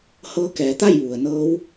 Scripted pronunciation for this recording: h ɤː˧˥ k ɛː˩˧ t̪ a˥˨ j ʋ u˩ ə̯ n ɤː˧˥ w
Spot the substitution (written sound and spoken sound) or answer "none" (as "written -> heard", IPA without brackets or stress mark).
none